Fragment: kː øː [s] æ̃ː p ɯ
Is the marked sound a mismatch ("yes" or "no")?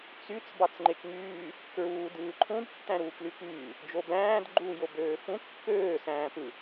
no